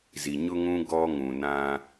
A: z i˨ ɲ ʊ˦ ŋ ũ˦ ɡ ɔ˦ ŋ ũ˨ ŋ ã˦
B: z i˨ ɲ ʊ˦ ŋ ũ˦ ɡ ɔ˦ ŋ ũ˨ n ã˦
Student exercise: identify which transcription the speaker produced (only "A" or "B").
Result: B